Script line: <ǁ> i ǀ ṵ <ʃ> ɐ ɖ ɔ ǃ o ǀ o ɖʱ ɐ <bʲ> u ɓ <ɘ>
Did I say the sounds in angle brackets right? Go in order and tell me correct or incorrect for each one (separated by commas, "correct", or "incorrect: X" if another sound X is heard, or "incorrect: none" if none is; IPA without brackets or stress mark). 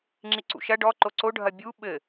incorrect: ŋ͡ǁ, correct, correct, correct